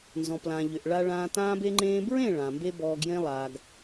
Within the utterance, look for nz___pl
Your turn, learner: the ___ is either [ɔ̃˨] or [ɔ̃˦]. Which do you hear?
ɔ̃˨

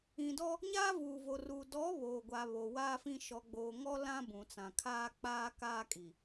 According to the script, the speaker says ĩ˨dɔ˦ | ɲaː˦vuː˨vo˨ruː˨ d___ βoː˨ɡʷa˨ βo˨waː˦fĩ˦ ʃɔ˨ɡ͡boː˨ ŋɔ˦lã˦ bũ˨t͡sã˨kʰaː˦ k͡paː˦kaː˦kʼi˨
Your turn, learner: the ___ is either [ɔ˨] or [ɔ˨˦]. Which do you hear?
ɔ˨˦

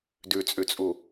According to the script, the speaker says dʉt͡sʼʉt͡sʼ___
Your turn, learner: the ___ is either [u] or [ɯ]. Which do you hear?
u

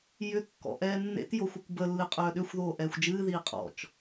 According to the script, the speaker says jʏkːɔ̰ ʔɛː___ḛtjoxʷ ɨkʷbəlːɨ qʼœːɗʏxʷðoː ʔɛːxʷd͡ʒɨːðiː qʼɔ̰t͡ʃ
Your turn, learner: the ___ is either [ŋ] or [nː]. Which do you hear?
nː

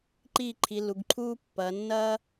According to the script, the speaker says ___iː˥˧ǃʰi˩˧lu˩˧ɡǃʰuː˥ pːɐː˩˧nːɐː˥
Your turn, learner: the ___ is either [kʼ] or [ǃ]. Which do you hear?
ǃ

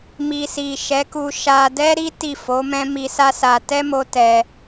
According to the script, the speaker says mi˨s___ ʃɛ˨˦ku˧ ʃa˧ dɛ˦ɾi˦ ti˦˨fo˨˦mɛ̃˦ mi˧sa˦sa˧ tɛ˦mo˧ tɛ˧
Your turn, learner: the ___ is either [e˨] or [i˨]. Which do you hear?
i˨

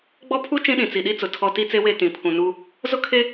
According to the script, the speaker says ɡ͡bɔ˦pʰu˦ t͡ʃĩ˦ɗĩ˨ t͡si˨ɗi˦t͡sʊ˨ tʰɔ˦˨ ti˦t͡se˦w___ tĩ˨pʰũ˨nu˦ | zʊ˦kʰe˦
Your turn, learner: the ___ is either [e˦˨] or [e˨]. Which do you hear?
e˦˨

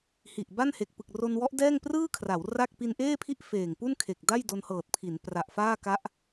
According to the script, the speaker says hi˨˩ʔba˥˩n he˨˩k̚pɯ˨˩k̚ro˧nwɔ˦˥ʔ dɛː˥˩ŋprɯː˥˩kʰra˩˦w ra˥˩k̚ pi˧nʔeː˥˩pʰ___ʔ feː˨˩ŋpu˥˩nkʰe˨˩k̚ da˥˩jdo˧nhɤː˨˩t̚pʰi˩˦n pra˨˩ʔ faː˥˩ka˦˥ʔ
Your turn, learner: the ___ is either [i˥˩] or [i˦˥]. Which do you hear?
i˥˩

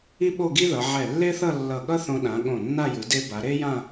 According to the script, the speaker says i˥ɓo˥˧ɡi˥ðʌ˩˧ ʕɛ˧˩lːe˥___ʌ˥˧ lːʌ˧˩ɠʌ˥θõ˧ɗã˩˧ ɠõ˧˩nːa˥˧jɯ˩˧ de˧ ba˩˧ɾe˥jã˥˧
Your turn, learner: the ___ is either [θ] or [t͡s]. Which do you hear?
θ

